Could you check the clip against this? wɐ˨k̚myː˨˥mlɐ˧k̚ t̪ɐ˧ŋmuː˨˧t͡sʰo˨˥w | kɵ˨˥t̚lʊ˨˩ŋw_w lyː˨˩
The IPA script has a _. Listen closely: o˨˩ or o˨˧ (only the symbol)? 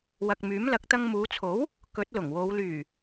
o˨˧